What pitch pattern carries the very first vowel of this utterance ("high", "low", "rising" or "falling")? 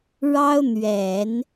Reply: high